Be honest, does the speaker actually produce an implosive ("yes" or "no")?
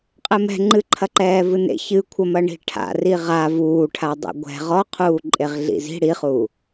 no